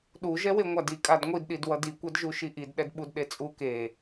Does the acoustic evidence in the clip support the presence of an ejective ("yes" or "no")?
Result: yes